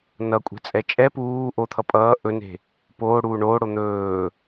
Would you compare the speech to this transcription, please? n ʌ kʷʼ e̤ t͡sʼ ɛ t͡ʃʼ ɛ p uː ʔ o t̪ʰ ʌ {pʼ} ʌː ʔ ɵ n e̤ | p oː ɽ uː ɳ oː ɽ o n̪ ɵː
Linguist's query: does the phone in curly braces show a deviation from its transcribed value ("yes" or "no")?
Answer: no